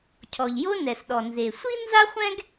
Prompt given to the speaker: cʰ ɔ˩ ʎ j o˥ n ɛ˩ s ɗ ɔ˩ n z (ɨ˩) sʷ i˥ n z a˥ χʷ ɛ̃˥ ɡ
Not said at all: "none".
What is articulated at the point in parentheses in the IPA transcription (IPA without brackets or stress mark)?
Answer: e˩